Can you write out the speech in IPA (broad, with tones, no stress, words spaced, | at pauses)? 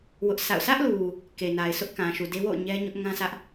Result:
wʊ˦ʔsa̰˦˨ʊ̯ sʰä˦ʔlu˨ | ke˨na˨ɪ̯sʰʊ˦ʔ kã˨ʃu˨de˦ wo̰˦˨ʊ̯ ɲɛ˦ɲʊ˦ʔ ŋã˦sʰä˦ʔ